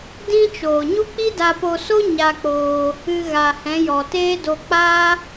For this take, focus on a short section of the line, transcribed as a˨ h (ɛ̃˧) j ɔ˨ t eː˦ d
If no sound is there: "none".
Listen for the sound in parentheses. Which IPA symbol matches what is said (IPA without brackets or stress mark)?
ɛ̃˨˦